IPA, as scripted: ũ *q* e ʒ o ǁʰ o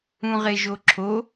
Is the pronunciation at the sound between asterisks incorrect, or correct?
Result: incorrect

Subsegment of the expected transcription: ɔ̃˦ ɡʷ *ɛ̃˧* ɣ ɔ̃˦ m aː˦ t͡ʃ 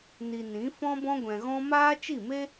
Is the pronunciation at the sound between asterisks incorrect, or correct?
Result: correct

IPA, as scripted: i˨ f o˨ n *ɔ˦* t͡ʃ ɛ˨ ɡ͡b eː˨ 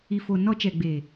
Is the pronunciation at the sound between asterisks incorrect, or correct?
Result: correct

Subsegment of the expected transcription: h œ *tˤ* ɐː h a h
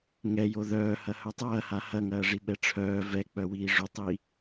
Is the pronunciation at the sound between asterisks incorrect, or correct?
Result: correct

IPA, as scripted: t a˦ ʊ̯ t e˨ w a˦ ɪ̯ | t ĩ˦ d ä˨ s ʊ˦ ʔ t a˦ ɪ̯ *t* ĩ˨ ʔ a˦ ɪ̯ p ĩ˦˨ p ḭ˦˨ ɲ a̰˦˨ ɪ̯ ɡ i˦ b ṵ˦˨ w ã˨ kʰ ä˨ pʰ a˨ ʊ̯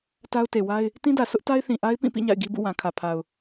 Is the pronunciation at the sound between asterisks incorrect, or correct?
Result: incorrect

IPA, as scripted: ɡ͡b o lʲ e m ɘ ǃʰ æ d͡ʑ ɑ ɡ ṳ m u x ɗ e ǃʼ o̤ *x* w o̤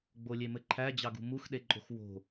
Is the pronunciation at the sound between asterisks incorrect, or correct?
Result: correct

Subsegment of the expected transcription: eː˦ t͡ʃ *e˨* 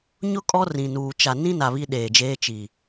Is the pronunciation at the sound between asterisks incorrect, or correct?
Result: incorrect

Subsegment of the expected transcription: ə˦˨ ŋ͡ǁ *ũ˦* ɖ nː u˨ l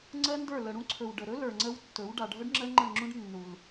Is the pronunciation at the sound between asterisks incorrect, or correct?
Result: correct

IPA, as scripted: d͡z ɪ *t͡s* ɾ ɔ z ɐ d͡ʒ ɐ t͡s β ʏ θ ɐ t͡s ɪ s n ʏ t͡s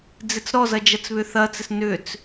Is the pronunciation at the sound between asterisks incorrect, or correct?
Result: correct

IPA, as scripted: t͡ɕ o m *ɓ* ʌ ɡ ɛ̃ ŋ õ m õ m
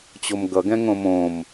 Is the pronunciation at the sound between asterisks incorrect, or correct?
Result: incorrect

